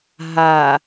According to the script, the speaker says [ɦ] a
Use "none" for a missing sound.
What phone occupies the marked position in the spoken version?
ɦ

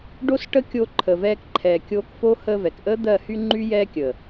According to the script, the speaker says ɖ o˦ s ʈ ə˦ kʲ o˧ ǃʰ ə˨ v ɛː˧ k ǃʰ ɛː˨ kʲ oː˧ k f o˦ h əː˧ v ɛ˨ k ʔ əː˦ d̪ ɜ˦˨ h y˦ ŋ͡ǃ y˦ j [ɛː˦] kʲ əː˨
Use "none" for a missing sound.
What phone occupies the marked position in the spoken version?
ɛː˦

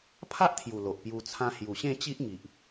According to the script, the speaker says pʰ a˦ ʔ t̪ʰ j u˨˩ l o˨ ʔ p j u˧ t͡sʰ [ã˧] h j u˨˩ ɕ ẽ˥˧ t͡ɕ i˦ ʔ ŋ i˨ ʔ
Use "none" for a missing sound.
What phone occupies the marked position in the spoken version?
ã˧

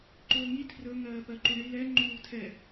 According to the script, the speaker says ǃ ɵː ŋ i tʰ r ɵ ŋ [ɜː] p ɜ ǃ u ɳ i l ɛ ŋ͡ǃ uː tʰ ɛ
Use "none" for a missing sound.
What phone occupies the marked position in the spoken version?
ɜː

